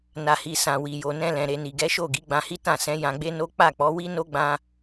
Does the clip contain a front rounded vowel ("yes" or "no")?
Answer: no